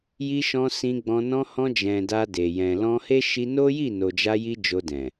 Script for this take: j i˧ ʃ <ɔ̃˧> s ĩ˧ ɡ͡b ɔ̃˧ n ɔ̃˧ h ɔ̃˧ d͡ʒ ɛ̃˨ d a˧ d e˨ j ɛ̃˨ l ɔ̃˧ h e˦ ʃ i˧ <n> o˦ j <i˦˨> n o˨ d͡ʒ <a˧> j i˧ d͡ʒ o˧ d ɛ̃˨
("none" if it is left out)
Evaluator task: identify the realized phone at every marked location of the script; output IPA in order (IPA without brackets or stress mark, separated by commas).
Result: ɔ̃˧, n, i˦˨, a˧